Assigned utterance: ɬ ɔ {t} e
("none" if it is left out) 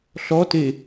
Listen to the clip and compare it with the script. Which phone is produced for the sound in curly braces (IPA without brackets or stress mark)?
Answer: t